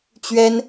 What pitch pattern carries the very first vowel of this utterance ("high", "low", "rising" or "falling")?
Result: high